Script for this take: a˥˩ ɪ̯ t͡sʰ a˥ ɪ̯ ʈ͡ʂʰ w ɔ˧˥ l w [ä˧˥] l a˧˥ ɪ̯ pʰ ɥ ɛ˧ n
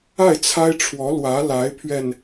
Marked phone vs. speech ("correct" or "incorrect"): correct